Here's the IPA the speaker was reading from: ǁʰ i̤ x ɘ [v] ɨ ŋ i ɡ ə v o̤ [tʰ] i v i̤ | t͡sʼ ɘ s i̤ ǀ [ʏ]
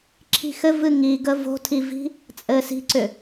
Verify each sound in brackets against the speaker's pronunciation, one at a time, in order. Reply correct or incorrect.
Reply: correct, correct, correct

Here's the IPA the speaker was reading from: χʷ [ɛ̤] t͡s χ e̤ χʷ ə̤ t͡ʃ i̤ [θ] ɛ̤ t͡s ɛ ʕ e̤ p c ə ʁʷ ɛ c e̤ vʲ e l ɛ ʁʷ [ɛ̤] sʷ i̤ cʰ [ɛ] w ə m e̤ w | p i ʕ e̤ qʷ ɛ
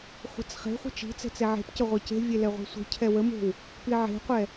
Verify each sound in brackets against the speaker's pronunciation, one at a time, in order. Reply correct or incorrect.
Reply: incorrect: ə̤, incorrect: t͡s, correct, correct

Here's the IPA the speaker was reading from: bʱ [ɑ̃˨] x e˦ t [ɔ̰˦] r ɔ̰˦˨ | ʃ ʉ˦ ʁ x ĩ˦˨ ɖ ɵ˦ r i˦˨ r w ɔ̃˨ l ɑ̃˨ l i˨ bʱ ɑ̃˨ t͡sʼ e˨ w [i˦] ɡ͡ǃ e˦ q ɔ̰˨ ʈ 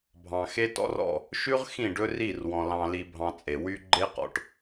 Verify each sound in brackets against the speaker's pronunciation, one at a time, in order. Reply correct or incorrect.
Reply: correct, correct, incorrect: y˦

